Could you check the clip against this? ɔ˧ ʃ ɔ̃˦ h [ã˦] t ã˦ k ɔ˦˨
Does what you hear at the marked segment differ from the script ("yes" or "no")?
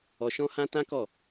no